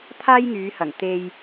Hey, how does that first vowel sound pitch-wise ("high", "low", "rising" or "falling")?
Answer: high